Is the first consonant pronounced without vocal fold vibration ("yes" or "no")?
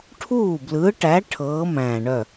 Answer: yes